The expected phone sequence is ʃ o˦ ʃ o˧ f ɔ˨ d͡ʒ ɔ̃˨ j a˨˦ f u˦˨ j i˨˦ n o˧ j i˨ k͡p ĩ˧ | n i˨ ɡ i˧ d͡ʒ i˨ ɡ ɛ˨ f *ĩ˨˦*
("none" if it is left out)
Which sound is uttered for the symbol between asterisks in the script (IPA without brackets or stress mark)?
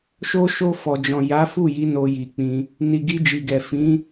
ĩ˨˦